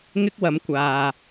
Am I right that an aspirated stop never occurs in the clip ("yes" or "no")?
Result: yes